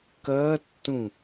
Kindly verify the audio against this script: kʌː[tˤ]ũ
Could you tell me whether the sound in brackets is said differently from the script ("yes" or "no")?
yes